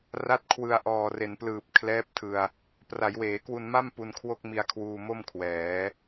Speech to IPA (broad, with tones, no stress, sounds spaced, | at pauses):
r a˦˥ t̚ kʰ w ɯ˧ a̯ ʔ ɔː˨˩ r e˩˦ n p l ɯː˨˩ p̚ kʰ l ɛː˦˥ p̚ tʰ ɯ˧ a̯ | p r a˩˦ j w eː˩˦ k w u˧ n m a˥˩ m p u˧ n kʰ w o˥˩ k̚ m i˧ a̯ kʰ w uː˧ m o˥˩ m kʰ w ɛː˩˦